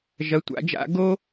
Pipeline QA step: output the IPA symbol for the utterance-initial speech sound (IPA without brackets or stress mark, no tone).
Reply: ʒ